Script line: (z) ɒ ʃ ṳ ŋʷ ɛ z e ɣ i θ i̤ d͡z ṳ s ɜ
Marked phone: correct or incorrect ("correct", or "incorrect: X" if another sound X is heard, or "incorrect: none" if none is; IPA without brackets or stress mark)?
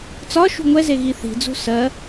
incorrect: t͡s